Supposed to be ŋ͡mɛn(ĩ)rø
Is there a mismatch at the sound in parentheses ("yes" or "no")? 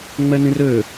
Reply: no